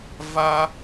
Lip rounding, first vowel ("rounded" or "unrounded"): unrounded